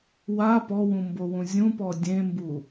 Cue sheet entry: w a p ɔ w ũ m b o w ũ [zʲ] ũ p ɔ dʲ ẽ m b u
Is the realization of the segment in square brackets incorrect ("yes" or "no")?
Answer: no